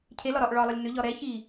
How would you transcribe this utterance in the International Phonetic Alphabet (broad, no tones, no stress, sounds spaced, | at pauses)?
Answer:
cʰ e l ɒ ɾ ɒ ʔ ɭ ɒ lˠ ɪ lʲ n ʏ ʎ ɒ ɾ ɛ ç i